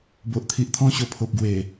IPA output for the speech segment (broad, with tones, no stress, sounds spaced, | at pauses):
b o˨ ʔ t̪ʰ i˨ ʔ t̪ʰ ɔ̃˧ ɕ o˨˩ pʰ o˨ p̚ ɡ w e˨˩